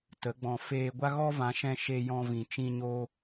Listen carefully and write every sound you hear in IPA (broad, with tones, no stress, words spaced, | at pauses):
tə˨˦ɡ͡bɔ̃˧ feː˧ɡʷa˦ ɣɔ˦vã˨˦ʃɛ̃˧ ʃe˧ jɔ̃˧vĩ˨t͡ʃĩ˧ ɲo˧